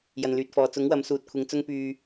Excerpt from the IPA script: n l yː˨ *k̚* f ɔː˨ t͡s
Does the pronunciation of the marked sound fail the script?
yes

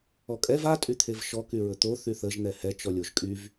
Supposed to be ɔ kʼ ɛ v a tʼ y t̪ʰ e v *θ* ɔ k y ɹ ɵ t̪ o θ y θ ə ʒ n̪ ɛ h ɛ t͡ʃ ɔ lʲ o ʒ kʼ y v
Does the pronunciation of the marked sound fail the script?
yes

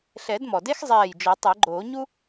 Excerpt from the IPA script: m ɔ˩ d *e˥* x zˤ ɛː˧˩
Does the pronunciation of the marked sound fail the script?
no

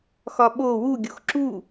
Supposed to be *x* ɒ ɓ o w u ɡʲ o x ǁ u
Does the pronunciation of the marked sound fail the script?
no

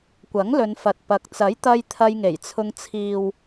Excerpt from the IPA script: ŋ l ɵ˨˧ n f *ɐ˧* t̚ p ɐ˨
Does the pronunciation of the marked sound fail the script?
yes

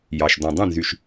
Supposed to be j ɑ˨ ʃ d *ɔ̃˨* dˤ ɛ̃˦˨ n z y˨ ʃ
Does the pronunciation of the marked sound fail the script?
no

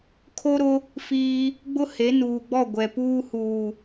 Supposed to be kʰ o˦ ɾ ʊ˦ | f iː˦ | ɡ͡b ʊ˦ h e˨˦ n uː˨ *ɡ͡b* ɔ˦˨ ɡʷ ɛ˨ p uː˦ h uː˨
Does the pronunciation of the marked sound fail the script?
no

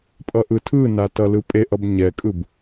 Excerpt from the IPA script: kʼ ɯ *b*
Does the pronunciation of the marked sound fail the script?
no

